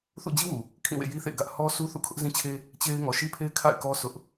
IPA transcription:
θ ṵ˦˨ d͡ʑ i˦ w u˨ | kʰ ĩ˦˨ w ḛ˦˨ j i˦ θ ḛ˦˨ ɪ̯ ɡ ä˦ ʔ h ɔ˦ s u˦ θ ṵ˦˨ kʰ ʊ˦ ʔ z ĩ˦ t͡ɕʰ e˦ | t͡ɕ e˦ ɪ̯ ŋ ɔ˨ ʃ i˦ pʰ e˦ ɪ̯ kʰ a̰˦˨ ɪ̯ k ɔ˦ s ʊ˦ ʔ

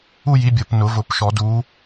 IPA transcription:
u˥˧ j i˨˦ bʲ ɤ˨˩˦ p n ʊ˨˩˦ v ʊ˨˩˦ p ʃ ɔ˨˩˦ d u˨˦

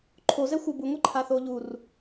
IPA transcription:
ǃʰ o z ɛ xʷ ɪ b u ŋʷ e ǃʰ a θ oː ʎ u r

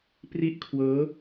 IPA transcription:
p r i˥˩ ʔ kʰ w ɤː˦˥

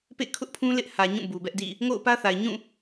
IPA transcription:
p ḛ˦˨ kʰ ʊ˦ ʔ pʰ ũ˦ l ɪ˦ ʔ h ä˨ ɲ ũ˦˨ b u˨ b ɛ˦ ʔ d ḭ˦˨ | ŋ o̰˦˨ ʊ̯ p ä˦ θ a˨ ɪ̯ ɲ ũ˦˨

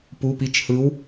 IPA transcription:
p u˩˧˩ p i˨˥ t͡ʃ h ɯ˨˥ w

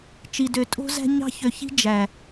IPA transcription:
t͡ʃ i˨ d ø˨ tʼ o̤˦ z æ̤˦ ɲ ɑ̤˦ ç ø˨ ç i̤˦ d͡ʒ æ˨

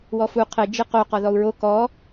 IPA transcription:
w ɔ f u qʰ ɘ d͡ʒ ɨ q o q ɔ ð ɔ u̯ ɹ o k ɔ

